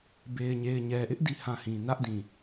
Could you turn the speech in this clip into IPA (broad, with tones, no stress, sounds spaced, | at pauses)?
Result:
b e˨ ɪ̯ ɲ e˨ ɪ̯ ɲ ɛ˨ ʔ ɪ˦ ʔ d i˦˨ h ã˦˨ h ĩ˨ n ä˦ ʔ d ĩ˨